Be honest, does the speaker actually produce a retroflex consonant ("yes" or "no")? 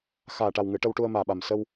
yes